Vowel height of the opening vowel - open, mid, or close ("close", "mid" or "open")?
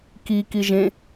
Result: close